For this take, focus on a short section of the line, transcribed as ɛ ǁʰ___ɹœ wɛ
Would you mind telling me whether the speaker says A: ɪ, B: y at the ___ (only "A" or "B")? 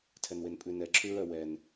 B